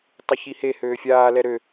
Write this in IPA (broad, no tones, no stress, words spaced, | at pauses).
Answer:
tˤɪçihe høːfʲaː lɛɾø